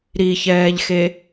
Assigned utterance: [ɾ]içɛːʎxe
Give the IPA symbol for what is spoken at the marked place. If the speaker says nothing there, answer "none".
ɾ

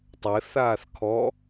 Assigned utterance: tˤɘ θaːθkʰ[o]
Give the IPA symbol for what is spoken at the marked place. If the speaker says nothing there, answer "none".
ɔ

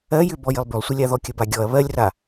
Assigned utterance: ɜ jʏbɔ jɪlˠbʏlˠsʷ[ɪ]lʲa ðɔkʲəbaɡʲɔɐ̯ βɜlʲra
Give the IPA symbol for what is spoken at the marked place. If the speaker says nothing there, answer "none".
ɪ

